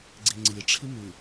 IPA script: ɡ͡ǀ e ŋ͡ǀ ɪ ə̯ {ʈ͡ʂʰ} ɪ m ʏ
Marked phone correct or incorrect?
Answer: correct